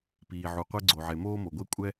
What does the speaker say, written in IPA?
piː˩ ʕu˩qʷe˥ ɡ͡ǀo˩ʕe˩ moː˥mo˩ɡʷe˥ kʷʼɛ˥

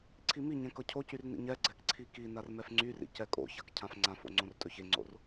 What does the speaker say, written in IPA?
ǀʰimiɲɛ̃ kɤcʰocyr nḭɲɛɡ͡ǀɛk ǀʰikinar mɛfŋ͡ǀyrḭ cɛkʼo̰çak cʰãfŋ͡ǀãfo̰ ŋ͡ǀõrtʼɵçeŋ͡ǀo̰r

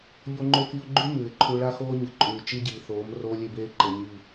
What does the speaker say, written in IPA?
ʎo˦ŋ͡ǃo˦ki˦ʊ̯ ɡ͡ǃʉ˦ mʉː˨ɪ̯ǃʰu˦ ɭa˦xoː˦ɲɨ˨ǃʼʉː˨ t͡ʃi˦ɟiː˨θoː˨˦m roː˦lʲe˦beː˦ ǃe˨ɲiː˦˨

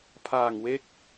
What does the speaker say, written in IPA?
pʰaː˨˩ŋwe˦˥k̚

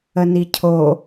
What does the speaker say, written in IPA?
ənicʰo

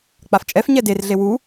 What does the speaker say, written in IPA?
k͡paft͡ʃʼɛf ɲɛder ɮewu

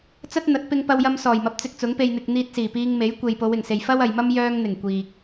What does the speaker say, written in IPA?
t͡sɐ˥t̚n̪ɐ˨˥t̚ pɪ˧ŋpɐ˧wjɐ˧m sɔː˨˩jmɐ˨˥p̚ t͡sɪ˧k̚t͡sʊ˨˥ŋ pe˨jn̪ɪ˨k̚ n̪iː˧t̚siː˨˩piː˧ŋme˨˥j kʷe˨jpo˨˧wɪ˨˩ŋse˨j fɐ˥wɐ˨jmɐ˥m jœː˧ŋn̪ɪ˨˩ŋ kʷiː˨k̚

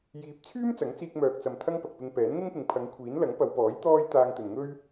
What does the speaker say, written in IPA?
jiː˨˥p̚t͡sʰyː˥m t͡sɐ˨˥ŋt͡siː˧k̚ mœː˨k̚t͡sɐ˨m t̪ʰɐ˧ŋ pɐ˨k̚pɪ˧ŋ pɛː˨˥nŋɪ˥ŋpɪ˨ŋ pʰɐ˨˧ŋkʷʰiː˨˥n lɐ˨˥ŋpɐ˨˧wpɔː˨˥j t̪ɔː˥j t̪aː˧ŋt̪ɵ˨nŋɵ˥ɥ

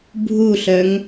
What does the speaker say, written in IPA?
bʱuɬœŋ

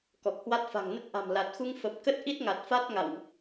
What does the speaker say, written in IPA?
kɔ˨˩k̚hwa˦˥t̚ fa̤˨˩ŋnə˦˥t̚ ʔa̤˨˩mla˨˩t̚xu˧ŋ fə˨˩p̚kə˦˥t̚ ʔi˦˥t̚ ŋa˨˩t̚fa˦˥t̚ ŋa̰˧˨wʔ

